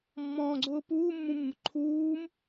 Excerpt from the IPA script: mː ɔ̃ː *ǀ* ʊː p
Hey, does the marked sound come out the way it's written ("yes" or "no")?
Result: no